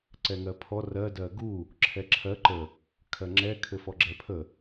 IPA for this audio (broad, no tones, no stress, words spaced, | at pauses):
ǀɛŋɜpʰɔ rɜ dɜɡu | ǁʰɛǁʰɜ ǃə | kʰɜŋ͡ǁɛ kʰɘfɔɡ͡ǁɛpʰə